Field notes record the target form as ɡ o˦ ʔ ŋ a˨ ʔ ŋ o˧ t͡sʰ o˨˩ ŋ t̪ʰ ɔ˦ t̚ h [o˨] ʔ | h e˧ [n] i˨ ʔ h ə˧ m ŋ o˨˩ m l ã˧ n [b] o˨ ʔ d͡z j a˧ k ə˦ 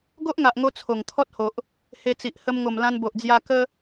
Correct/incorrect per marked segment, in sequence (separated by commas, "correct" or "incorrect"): correct, incorrect, correct